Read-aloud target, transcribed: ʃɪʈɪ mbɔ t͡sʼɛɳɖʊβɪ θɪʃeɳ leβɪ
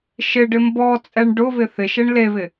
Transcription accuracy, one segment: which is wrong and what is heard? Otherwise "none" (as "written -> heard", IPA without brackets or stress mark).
ʈ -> ɖ